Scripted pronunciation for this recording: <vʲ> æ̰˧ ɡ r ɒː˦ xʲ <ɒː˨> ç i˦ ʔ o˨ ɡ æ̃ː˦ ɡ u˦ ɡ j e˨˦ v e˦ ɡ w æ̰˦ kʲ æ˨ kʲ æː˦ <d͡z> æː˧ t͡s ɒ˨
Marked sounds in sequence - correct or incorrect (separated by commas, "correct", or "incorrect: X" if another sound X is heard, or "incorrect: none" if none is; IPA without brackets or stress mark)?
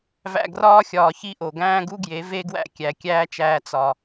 incorrect: v, correct, incorrect: t͡ʃ